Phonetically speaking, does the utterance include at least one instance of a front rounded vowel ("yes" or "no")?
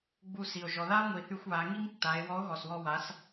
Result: yes